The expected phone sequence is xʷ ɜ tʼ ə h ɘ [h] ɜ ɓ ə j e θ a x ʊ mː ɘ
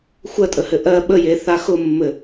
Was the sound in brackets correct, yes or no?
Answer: no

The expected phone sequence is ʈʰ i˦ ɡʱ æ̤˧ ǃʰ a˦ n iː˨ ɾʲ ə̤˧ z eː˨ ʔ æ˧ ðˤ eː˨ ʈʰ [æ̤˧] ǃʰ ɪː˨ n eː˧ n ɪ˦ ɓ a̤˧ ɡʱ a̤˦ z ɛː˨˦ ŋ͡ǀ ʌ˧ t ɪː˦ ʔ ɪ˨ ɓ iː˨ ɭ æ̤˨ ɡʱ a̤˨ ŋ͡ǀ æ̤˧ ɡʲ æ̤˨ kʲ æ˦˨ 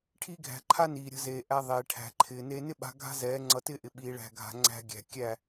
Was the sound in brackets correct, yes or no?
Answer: no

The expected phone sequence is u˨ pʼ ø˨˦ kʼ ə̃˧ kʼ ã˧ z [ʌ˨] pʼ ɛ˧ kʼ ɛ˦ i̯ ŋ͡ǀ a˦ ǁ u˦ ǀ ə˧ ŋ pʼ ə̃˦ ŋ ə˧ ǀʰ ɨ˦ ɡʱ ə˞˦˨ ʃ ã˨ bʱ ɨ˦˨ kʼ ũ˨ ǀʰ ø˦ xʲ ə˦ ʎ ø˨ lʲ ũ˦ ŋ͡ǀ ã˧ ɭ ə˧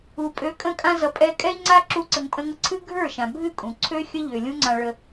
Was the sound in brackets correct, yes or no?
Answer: yes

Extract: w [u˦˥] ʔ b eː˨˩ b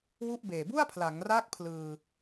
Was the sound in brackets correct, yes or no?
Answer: no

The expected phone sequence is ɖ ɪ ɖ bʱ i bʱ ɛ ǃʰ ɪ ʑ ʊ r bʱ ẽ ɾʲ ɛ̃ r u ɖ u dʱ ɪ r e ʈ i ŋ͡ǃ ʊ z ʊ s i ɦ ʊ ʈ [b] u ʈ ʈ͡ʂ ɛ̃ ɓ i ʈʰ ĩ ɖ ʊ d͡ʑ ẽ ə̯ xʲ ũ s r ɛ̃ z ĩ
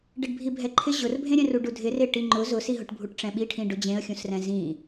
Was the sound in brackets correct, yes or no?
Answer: no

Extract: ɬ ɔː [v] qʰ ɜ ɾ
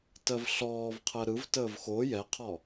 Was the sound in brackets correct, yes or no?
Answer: yes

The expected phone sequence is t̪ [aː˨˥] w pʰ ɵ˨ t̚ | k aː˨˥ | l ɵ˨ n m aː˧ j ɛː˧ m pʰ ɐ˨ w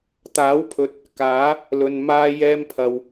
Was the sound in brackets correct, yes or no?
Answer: yes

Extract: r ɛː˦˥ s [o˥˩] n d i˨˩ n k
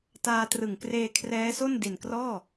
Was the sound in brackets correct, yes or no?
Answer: yes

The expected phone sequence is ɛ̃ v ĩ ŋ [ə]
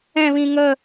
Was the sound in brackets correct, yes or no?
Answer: yes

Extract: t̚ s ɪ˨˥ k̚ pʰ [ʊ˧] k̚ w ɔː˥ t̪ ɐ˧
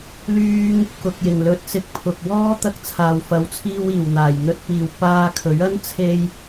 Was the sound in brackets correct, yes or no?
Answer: no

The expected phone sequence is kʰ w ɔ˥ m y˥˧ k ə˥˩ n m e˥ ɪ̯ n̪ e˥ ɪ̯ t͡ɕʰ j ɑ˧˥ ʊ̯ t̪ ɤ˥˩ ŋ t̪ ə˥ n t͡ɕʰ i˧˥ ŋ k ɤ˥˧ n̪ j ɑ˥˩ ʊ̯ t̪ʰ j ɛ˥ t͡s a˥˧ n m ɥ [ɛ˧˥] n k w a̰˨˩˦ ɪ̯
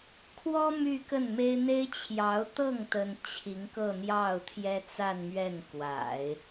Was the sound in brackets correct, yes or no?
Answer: no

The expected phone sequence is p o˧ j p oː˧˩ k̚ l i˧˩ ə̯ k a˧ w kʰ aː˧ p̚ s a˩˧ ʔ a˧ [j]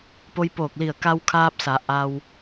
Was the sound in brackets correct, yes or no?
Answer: no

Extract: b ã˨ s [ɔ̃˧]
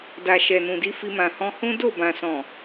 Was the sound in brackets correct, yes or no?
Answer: no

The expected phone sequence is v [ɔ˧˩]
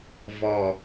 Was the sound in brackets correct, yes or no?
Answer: yes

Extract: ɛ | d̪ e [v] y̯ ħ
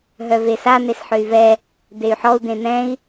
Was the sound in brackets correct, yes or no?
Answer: no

